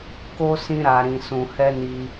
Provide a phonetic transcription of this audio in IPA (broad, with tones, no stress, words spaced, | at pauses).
ko˦ sĩ˦ɾa˧ ɾĩ˧sũ˧hɛ˦ ni˧